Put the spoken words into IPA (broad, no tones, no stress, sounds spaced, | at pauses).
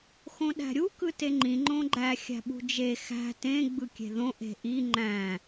x õ ɗ æ̤ ɾʲ u k ɯ t e ŋ͡ǃ ĩ ŋ͡ǃ õ ɡ͡ǃ æ xʲ æ̤ ɓ ṳ d͡ʒ e x æ̤ t ẽ ɡ͡b ɯ kʲ e̤ ð õ ʔ e̤ ʔ i ŋ͡ǃ æ̃